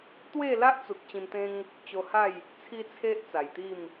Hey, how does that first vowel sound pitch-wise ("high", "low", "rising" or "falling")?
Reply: falling